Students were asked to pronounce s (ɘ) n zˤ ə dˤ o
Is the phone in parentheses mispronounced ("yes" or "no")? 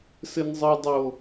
no